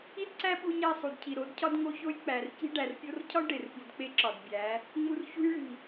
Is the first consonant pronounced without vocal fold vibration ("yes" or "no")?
no